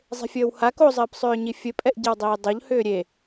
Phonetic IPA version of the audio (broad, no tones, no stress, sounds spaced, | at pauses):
zˤ e̤ fʲ əː w h a k o zˤ ɘː p sˤ ʏː ɲ i fʲ ɘ pʼ ɛ ʔ ɟ ɘ w dˤ iː dˤ o ʎ h ʏː ɾʲ e